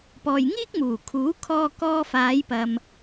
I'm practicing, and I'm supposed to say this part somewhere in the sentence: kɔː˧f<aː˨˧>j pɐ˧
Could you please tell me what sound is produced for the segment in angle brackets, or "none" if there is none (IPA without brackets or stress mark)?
aː˨˧